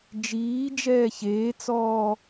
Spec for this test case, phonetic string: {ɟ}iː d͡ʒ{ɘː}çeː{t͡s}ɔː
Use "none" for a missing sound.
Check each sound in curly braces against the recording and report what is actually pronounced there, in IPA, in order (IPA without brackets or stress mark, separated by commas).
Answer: d͡ʒ, ɛː, t͡s